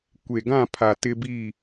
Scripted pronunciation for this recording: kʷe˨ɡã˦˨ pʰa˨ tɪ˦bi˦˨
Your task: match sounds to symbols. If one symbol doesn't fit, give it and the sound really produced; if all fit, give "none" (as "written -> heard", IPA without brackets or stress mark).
none